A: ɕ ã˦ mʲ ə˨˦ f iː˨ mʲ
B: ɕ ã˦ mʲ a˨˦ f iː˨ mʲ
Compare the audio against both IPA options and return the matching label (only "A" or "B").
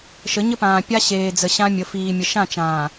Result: A